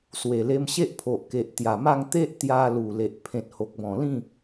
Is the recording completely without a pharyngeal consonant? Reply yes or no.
yes